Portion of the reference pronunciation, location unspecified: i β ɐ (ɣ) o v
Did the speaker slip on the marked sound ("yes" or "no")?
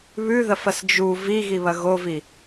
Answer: no